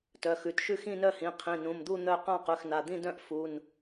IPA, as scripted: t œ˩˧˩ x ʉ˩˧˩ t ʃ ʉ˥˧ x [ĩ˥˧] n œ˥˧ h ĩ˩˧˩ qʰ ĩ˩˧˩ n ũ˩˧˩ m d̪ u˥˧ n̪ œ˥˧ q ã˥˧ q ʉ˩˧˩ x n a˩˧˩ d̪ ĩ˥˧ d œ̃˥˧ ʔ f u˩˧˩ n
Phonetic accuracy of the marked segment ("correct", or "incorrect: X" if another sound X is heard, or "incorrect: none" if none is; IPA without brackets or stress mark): correct